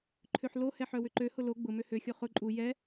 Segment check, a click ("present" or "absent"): present